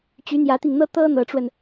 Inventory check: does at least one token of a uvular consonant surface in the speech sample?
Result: no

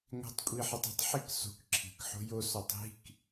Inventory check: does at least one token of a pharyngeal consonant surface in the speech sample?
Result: yes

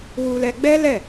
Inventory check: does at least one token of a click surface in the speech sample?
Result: no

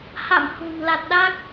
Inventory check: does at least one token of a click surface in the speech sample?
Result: no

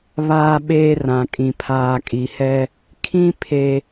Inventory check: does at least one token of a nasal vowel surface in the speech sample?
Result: yes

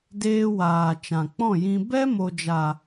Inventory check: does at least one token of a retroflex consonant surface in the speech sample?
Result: no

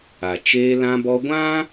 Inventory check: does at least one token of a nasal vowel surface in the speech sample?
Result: yes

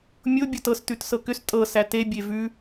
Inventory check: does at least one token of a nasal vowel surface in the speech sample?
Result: no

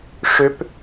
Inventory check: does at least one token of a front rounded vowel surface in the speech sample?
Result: yes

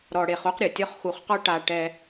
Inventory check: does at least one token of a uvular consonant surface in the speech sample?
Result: yes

